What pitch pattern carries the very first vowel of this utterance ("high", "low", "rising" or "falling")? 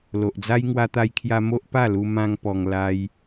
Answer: low